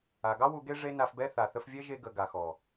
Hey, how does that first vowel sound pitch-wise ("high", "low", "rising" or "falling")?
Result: low